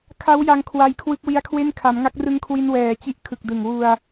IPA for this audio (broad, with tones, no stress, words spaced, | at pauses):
kʰa˦˥wja˧ŋ kʰwa˧j kʰwɯ˦˥k̚wi˦˥a̯kʰwe˥˩n kʰa˩˦mŋa˦˥k̚rɯ˦˥ŋkʰwi˧n wɛː˨˩t͡ɕi˦˥ʔ kʰɯ˨˩k̚dɯ˨˩ŋ wu˧a̯